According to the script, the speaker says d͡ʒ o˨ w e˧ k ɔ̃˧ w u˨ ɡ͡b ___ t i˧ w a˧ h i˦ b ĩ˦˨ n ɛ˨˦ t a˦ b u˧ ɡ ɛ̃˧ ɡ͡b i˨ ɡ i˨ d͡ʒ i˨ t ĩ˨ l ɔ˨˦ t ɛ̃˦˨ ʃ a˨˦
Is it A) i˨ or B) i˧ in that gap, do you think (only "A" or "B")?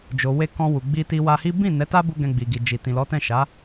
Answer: B